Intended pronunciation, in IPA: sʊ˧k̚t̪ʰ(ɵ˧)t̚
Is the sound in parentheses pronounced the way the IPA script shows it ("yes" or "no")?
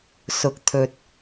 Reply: yes